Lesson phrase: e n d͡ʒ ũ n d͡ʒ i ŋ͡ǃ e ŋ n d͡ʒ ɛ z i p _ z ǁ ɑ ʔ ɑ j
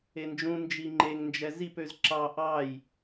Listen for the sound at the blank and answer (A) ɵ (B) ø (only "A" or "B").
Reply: B